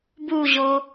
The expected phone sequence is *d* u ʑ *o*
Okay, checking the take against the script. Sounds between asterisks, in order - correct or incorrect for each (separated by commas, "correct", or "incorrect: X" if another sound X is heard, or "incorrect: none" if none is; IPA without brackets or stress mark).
incorrect: b, correct